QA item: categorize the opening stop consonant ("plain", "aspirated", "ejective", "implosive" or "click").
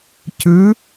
plain